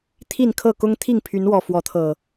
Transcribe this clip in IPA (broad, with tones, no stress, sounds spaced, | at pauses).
t̪ʰ i˥˨ n kʰ ɤ˥˨ k ʊ˦ ŋ t̪ʰ i˥˨ ŋ pʰ y˨˦ n w ɔ˨˩ f w ɔ˨˦ t̪ʰ ɤ˨˩